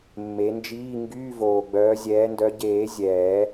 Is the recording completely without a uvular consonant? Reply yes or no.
yes